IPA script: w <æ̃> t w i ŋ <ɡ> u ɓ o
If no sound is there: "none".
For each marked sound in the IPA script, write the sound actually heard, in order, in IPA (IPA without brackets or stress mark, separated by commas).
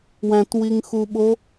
æ̃, x